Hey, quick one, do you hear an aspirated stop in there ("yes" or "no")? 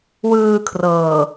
yes